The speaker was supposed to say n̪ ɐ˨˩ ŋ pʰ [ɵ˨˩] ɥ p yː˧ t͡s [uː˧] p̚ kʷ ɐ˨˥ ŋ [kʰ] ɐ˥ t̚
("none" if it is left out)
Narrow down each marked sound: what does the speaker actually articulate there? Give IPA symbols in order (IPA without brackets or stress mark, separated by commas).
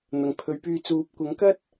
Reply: ɵ˨˧, uː˨˥, k